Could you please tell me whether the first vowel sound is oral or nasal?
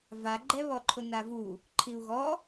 oral